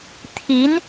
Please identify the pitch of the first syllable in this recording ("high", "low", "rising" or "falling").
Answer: rising